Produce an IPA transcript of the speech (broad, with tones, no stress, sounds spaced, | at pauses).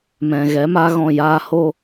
m ɛ̃˨ ɣ ɛ˨˦ m aː˦ ɣ ɔ̃˦˨ j aː˦ h o˦